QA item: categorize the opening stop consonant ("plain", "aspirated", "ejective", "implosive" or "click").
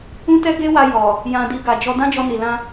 plain